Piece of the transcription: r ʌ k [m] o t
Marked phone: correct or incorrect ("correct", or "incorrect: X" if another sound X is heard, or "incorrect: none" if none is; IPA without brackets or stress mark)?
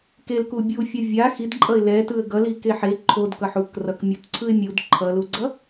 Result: incorrect: mʲ